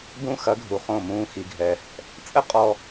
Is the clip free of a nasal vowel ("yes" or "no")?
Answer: no